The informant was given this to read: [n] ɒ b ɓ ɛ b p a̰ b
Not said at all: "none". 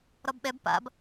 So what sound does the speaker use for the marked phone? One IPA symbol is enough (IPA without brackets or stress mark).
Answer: ɾ